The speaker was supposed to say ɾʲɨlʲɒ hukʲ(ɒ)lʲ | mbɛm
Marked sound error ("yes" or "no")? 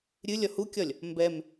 no